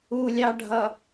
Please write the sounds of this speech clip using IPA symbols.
u lʲ ɑ ɖʱ ʌ

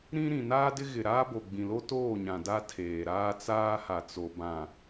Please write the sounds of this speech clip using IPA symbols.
ɾ ĩ˦ ɾ ĩ˨ n aː˦ d ɪ˦ ɣ ɪ˨ ɾ aː˦ b o˨ ɡ͡b ĩ˨ l o˦ t oː˦˨ ɲ ã˨ d a˦ tʰ eː˨ ɾ aː˦ t͡s aː˦ h a˨ t͡s o˨ b ã˨

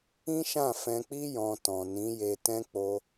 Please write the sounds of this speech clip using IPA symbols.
ĩ˦ ʃ ã˦˨ f ɛ̃˧ k͡p i˦ j ɔ̃˧ t ɔ̃˨ n ĩ˨˦ j e˧ t ɛ̃˦ k͡p o˧

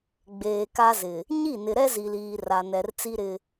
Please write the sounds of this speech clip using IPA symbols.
ɡ͡b eː˨ k a˦ z ɪ˨ | ɲ i˦˨ n ɪ˨ ɾ ɛ˦ z i˨ l iː˨ r a˨ n ɛ˨ r t͡s i˦ ɾ ɪ˦

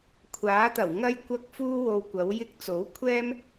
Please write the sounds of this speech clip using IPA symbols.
kʷʰ aː˨˥ t̪ ɐ˨˩ w ŋ ɐ˧ j kʷ ɐ˧ k̚ f uː˥ w o˧ w kʷ ɐ˨˥ w j ɪ˧ k̚ t͡s o˨˥ w kʷʰ ɛː˥ m

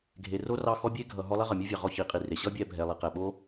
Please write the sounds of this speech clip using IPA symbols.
ɡʱ e˨ r o˥ r ɑ˦ x ɔ˥ bʲ e˥ ɡʱ ʌ˨ ɦ ɔ˦ lˠ ɛ˥ ʁ ʌ˩ mʲ o˥ vʲ ɑ˩ ʁ ɔ˦ ç i˩ qʼ i˨ r e˩ ɕ ʌ˦ bʲ ɛ˨ bʱ ɛ˩ lˠ i˩ q ɛ˩ ɓ o˥

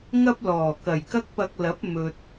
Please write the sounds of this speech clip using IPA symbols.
ŋ ɐ˥ p̚ l ɔː˨˩ k ɐ˨˩ j k ɐ˥ k̚ p ɐ˧ k̚ l ɐ˨˥ p̚ m ɵ˨ t̚

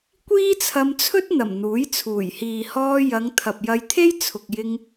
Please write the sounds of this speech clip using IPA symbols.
kʷ iː˥ t͡sʰ ɐ˧ m t͡sʰ ɵ˥ t̚ n̪ ɐ˨˩ m n̪ uː˨˥ j t͡sʰ uː˨˩ j h iː˨ h ɔː˧ j ɐ˨˧ ŋ t̪ʰ ɐ˨ p̚ j ɐ˧ j t̪ʰ e˥ j t͡sʰ ʊ˨ k̚ j ɪ˧ ŋ

